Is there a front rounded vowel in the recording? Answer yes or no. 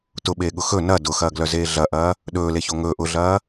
yes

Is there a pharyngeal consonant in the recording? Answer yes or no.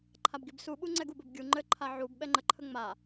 yes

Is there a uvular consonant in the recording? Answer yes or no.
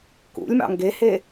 no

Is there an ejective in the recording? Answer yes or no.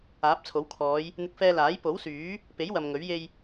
no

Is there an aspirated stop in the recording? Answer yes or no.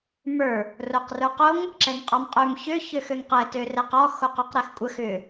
no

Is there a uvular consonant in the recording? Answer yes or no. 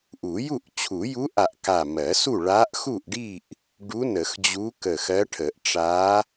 no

